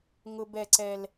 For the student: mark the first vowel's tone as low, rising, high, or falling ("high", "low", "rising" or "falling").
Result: low